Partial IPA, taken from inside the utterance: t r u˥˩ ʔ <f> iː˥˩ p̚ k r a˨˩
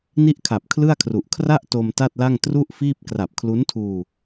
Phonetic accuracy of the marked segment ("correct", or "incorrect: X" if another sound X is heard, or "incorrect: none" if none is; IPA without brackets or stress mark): correct